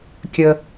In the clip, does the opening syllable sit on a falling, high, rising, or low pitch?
low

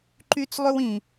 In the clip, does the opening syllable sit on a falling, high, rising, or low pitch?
high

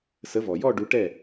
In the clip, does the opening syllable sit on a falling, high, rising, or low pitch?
rising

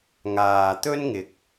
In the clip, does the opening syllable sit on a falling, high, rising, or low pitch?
low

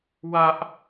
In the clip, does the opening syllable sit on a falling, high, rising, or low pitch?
high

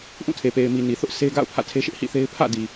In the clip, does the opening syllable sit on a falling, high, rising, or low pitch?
falling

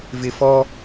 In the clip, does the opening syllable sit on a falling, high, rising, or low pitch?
low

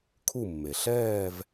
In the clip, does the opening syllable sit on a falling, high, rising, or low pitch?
falling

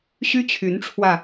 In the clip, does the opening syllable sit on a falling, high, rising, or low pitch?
high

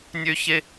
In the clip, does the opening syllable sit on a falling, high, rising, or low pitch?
high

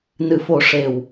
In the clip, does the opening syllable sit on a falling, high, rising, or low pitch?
low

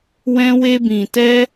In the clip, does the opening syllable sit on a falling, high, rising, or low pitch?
high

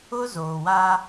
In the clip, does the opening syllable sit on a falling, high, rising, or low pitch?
high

